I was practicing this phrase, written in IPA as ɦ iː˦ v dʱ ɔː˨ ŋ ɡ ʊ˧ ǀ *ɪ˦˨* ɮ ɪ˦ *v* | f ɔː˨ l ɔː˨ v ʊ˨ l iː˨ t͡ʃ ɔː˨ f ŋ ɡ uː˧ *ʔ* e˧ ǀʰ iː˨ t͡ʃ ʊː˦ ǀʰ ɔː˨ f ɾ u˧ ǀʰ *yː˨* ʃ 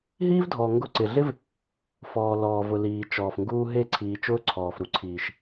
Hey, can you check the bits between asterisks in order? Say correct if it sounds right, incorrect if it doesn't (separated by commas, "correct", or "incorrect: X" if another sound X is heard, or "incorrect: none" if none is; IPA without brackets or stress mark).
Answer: incorrect: ɪ˨, correct, incorrect: ɦ, incorrect: iː˨